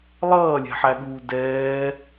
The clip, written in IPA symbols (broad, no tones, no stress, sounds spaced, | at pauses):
lˠ ʌː lʲ ɛ̤ ħ æ ɠ uː d ɛː